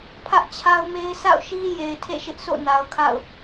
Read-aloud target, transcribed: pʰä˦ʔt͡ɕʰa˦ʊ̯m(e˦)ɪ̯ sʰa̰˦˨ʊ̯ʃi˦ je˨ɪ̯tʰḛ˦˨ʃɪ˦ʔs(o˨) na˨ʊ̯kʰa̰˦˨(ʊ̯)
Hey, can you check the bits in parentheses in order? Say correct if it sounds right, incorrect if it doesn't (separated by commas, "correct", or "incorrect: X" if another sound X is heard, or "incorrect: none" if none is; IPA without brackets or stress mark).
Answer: correct, incorrect: o̰˦˨, correct